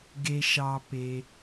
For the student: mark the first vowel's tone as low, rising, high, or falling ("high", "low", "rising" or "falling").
low